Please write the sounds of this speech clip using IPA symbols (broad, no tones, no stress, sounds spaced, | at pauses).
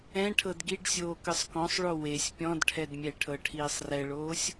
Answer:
ɛ̃ ʈʰ ɤ d ɡ i ɖ sʲ oː k ɯ sˤ k ɔ̃ sˤ ɭ o w e sʲ pʲ ɔ̃ d ʈʰ ɛ d mʲ ɛ ʈʰ ɤ ʈʰ iː sˤ r ɛ ɭ oː sʲ